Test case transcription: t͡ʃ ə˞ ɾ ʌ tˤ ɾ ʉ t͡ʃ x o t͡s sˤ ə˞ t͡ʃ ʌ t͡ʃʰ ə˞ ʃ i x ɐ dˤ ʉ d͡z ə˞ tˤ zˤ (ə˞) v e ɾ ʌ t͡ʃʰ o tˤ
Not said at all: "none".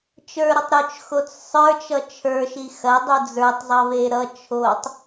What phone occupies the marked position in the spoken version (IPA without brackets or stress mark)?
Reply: ʌ